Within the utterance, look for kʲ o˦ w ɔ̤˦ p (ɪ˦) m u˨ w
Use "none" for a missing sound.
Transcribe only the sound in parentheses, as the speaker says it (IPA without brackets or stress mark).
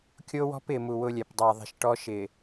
ɪ˨